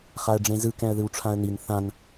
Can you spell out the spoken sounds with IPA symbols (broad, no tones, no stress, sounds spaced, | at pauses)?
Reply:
χ a ə̯ ɖ͡ʐ ẽ z ɯ k ɛ̃ ə̯ ð ɯ w ʈ͡ʂʰ ã ə̯ n i n θ ã n